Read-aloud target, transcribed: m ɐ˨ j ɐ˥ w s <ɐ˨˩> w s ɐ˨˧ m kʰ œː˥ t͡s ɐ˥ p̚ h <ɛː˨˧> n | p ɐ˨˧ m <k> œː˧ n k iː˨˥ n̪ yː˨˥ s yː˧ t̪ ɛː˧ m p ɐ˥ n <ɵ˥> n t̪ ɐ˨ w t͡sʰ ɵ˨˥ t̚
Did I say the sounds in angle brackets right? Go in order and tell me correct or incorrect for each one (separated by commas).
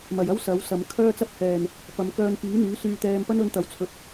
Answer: incorrect, incorrect, correct, incorrect